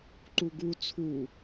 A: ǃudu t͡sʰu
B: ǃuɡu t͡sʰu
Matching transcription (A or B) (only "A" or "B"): B